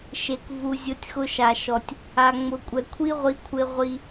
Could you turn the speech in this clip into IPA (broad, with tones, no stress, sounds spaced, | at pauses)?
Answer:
ʃ e˨ k v u˨ zʲ o˧ tʲ x ʊ˧ ʃ a˨ ʃ ɔ˨ tʲ | a˨ ŋ͡m ʊ˨ kʷʼ ɛ˨ kʷʰ i˦ ʁʷ i˨˦ kʷʰ ɪ˧ ʁʷ i˧